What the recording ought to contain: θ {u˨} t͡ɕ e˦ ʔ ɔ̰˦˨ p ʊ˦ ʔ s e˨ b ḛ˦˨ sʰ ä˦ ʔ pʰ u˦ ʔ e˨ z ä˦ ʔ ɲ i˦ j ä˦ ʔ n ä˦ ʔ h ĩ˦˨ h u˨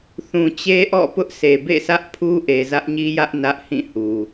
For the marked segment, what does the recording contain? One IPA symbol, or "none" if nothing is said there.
ũ˨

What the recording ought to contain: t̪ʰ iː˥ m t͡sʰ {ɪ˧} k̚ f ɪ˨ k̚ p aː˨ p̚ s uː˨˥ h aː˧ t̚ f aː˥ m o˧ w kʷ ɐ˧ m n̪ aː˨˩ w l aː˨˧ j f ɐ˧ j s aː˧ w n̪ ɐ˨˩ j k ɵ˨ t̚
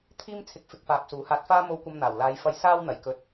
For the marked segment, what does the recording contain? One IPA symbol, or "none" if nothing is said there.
ɪ˧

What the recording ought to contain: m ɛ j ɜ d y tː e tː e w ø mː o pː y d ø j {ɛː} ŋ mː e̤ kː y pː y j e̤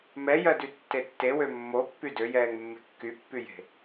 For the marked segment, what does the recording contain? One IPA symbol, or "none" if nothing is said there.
ɛː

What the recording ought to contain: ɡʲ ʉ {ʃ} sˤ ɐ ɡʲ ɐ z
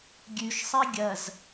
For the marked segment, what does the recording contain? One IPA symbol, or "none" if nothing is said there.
ʃ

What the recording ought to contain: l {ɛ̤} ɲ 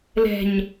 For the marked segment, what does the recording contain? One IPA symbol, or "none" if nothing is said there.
ɛ̤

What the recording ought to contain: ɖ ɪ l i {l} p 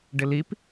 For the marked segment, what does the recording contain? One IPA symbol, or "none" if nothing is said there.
none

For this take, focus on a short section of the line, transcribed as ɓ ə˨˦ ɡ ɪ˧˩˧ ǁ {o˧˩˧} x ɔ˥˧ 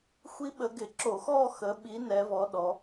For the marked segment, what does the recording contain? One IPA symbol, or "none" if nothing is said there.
o˧˩˧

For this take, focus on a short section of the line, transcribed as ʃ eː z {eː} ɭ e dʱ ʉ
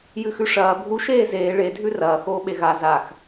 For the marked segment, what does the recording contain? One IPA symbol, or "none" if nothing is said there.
eː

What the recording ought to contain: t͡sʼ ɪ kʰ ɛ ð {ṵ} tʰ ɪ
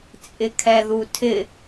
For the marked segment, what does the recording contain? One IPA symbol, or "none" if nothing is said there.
u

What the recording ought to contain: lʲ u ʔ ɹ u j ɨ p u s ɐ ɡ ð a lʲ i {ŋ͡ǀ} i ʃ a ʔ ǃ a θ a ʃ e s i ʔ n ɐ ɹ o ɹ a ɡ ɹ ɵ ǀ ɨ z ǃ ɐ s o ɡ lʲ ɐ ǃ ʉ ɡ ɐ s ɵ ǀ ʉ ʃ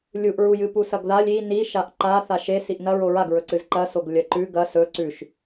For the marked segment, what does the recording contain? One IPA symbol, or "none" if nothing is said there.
n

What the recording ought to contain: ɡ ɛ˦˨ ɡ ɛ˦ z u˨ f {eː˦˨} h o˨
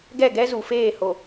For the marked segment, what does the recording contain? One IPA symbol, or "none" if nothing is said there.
eː˦˨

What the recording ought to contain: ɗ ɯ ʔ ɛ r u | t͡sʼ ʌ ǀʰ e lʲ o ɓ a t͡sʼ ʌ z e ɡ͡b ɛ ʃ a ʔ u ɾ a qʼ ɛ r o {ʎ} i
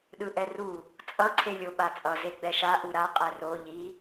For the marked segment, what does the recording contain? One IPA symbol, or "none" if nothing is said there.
ʎ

